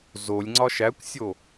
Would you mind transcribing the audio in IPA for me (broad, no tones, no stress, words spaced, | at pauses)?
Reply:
zolʲŋ͡ǀɒ ʃækʷsʲo